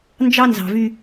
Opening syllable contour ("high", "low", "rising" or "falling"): high